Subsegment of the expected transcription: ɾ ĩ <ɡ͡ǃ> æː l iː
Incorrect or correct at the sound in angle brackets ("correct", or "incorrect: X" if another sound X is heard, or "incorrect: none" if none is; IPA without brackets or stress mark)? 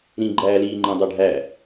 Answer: correct